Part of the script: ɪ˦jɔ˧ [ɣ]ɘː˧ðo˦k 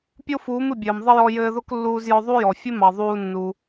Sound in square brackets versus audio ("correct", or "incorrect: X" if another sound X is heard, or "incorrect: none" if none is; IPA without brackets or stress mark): incorrect: j